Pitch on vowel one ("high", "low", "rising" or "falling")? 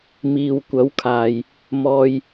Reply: low